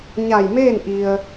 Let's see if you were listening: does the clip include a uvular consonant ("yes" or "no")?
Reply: no